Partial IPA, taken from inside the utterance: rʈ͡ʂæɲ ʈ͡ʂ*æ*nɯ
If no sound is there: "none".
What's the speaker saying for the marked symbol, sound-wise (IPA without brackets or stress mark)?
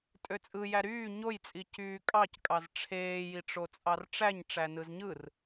æ